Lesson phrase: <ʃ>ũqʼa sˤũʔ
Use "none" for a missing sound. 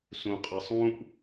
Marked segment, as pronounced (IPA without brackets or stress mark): s